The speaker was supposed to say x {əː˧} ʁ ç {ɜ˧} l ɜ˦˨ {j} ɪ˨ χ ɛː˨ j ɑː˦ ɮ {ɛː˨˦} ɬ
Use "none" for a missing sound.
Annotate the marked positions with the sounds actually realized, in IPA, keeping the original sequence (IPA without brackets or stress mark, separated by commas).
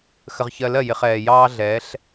ə˧, ɜ˧, j, ɛː˨˦